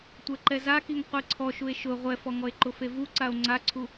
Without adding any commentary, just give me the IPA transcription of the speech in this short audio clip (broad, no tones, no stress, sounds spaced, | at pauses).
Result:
tʷ ɛ ǃ ɛ z a k i ŋ qʷ i ǀʰ ɔ ʃ u e̯ ʃ ʊ ʁʷ ɛ f ɔ ŋ ɔ e̯ ǃ ʊ f e v u ǀ a o̯ ŋ͡ǀ a ǀʰ u